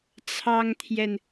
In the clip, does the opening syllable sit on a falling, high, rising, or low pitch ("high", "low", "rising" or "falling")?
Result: high